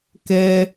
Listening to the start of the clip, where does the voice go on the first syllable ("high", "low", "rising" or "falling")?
high